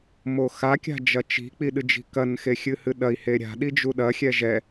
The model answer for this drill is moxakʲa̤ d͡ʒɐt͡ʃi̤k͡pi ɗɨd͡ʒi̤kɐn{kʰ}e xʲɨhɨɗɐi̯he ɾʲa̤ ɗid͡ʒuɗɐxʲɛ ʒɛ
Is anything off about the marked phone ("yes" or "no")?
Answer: yes